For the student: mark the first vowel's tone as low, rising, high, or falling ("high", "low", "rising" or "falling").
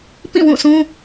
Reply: falling